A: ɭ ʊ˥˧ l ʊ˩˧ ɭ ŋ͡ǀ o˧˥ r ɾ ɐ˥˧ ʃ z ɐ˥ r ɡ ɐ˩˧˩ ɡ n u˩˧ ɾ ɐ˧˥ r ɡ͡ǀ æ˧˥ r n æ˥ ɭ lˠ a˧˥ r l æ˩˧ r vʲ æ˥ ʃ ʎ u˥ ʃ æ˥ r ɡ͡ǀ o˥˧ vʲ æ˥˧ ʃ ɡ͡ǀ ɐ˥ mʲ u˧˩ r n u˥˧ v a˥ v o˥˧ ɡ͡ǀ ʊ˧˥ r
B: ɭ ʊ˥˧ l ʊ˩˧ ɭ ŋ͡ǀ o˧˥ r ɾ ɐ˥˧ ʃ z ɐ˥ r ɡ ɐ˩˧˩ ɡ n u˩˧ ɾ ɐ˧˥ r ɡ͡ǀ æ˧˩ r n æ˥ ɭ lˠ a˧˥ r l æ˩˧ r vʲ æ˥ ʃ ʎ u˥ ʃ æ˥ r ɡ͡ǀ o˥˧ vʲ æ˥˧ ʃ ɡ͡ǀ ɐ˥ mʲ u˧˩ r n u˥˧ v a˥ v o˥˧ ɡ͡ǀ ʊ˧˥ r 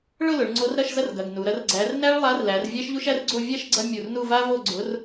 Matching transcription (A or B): A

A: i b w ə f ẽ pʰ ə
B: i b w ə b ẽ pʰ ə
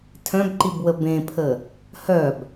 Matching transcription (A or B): B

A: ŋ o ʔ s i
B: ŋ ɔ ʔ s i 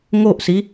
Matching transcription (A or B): A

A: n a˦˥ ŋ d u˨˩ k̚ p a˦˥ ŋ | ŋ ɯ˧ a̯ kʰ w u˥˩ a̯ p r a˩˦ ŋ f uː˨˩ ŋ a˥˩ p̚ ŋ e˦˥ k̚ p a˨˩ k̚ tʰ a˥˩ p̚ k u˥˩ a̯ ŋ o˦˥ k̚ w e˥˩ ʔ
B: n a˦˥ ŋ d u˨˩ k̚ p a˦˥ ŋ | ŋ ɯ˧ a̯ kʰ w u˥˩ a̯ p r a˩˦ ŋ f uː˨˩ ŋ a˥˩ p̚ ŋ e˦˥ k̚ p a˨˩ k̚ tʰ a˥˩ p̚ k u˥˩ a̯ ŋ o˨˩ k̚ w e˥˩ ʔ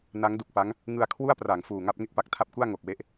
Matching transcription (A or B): B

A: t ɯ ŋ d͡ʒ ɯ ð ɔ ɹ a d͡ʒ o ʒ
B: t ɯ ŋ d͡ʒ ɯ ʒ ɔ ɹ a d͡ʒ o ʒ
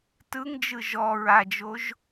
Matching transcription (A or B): B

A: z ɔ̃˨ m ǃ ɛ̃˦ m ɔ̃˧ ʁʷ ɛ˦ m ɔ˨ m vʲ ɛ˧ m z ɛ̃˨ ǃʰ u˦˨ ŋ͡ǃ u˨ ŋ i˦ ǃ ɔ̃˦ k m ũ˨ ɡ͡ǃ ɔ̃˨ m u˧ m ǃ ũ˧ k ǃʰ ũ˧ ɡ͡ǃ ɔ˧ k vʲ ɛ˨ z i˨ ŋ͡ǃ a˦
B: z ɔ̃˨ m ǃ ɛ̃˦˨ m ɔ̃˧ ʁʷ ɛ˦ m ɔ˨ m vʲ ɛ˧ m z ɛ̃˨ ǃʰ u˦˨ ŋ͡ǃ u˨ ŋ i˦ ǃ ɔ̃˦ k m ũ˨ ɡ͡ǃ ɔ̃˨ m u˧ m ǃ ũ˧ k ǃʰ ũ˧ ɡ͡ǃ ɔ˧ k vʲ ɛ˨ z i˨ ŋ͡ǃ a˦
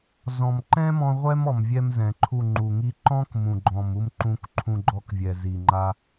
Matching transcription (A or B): A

